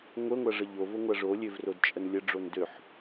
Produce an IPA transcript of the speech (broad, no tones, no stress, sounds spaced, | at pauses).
ŋʷ ə ŋʷ a ʐ ə ʎ o v o ŋʷ a ʐ o lʲ ø v r o d t͡ʃʼ ə n lʲ ə ɖ͡ʐ o n d ø ħ